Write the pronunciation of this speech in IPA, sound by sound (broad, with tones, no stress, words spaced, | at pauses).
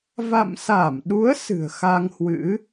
va̰˧˨msa˧˩mɗu˨˦ə̯ sɨ̤˨˩ə̯xa˧ŋhwɨ̰˧˥